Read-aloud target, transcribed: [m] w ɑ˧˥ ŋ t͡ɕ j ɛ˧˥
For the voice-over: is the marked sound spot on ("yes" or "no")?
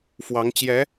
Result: no